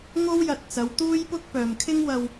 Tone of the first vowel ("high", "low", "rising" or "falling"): high